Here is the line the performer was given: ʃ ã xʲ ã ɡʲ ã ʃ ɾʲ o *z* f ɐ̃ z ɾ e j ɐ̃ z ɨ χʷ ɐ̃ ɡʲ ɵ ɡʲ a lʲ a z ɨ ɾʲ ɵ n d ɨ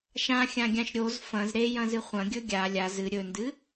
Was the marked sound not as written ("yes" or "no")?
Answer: no